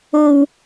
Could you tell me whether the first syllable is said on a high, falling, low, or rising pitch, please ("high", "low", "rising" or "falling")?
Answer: low